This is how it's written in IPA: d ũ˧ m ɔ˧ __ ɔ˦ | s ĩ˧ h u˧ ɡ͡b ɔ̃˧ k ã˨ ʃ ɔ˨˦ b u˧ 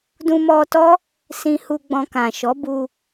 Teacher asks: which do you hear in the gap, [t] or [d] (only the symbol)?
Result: t